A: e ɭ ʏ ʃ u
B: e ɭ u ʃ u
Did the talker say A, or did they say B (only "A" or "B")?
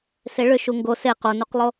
A